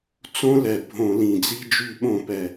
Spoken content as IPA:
t͡sõ˦˥lɛ˨˩ bʱõ˧˩˧lĩ˨˩d͡zi˧˥˧ d͡ʒy˧˩˧ɓõ˧˩˧ pɛ˨˩

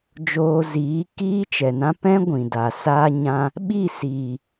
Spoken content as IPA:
d͡ʒoː˧ziː˨˦ kiː˦t͡ʃɛ˨nã˦ pɛ̃˦ ɡʷĩ˨da˨ saː˦ɲã˦ | ɓi˦˨siː˨

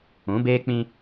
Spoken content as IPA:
ũ˨˦beː˦k͡pĩ˦

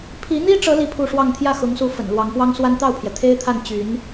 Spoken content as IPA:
pʰi˧˥n̪i˥ʈ͡ʂɤ˧˥ li˥˧pʰu˥˧ʂwɑ˥˧ŋ t̪ʰjä˥˩xʊ˧˥ŋsu˧˥ fə̰˨˩nlwɑ˧˥ŋpwɑ˥ŋswa˥n t̪ɑ˥˩ʊ̯pʰjɛ˩ t̪ʰe˥ɪ̯t̪ʰa˥˩nt͡ɕy˧˥n

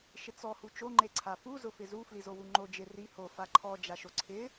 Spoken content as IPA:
ʃɪt͡sɔ hut͡ʃo ŋ͡ǃeǀʰafu zʊfɪzu flizowuŋ͡ǃo d͡ʒɪ ri ho faǃʰɔ d͡ʒaʃoǀʰɪ

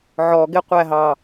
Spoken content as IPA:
ʕɔɡɪ qʷæɦɑ

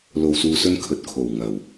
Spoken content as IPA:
lo˨wsuː˨sɵ˧n kʰɵ˨t̚kʰo˨˩wŋɐ˨˩w

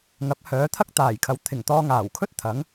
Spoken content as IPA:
ŋɐ˨˥p̚hœː˨˥t̪ʰɐ˥k̚ t̪aː˨˩jkʰɐ˨˥w t̪ʰɪ˨˩ŋt̪ɔː˧ ŋaː˨˩wkʰɵ˥t̚t̪ʰɐ˨˥ŋ

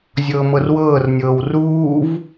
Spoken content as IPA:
zʲɤːmɤrwɤːrnʲɤːw ruːv

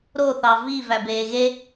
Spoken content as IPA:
ɾoθɑ vi væbeːɣe

